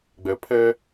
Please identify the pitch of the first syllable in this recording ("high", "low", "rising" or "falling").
low